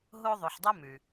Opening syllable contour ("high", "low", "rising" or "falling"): high